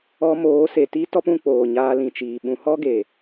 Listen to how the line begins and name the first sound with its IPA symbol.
ɔ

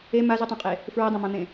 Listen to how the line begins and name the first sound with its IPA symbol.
e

